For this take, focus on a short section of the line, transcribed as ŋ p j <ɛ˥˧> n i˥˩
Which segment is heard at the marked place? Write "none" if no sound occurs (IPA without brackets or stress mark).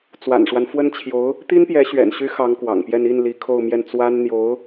ɛ˥˧